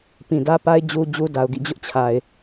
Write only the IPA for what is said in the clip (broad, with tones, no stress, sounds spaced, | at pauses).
p ĩ˨ d ä˦ p a˦ ɪ̯ d͡ʑ u˦ d͡ʑ u˦ d a˨ ʊ̯ ɡ ḭ˦˨ d͡ʑ ʊ˦ ʔ t͡ɕʰ a˨ ɪ̯